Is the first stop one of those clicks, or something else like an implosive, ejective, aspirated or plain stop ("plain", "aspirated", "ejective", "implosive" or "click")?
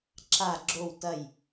click